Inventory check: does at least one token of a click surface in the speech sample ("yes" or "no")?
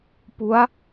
no